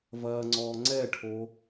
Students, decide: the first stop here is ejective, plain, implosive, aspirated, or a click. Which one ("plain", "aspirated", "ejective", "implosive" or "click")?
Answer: click